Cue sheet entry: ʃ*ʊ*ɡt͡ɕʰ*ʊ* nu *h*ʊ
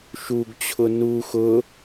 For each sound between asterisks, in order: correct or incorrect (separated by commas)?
incorrect, correct, incorrect